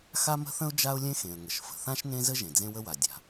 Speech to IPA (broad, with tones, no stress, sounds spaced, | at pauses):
x a˥ m ə̤˥ θ ə̃˥ ʊ̯ d͡ʒ a˥ ʊ̯ lʲ ẽ˥ x ẽ˩ ə̯ ŋ ə˩ ʃ f ə̤˩ θ ã˥ ʃ n ẽ˥ z ə˥ ʒ ẽ˩ d͡z ẽ˥ w ə˥ w a˩ dʲ a̤˩